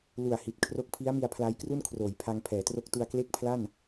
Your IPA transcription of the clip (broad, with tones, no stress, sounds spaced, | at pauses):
l u˨˩ a̯ h i˨˩ t̚ kʰ r o˦˥ k̚ pʰ i˦˥ a̯ m i˧ a̯ pʰ l a˦˥ j k r u˥˩ n kʰ r oː˩˦ j pʰ a˧ ŋ pʰ ɛː˩˦ t r o˦˥ k̚ t u˧ a̯ k l e˥˩ k̚ pʰ l a˥˩ n